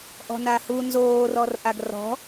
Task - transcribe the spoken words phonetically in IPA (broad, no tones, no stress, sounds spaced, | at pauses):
ʔ ɔ̤ n a h u n z oː r ɔ r ʔ a ɡ r ɔ̤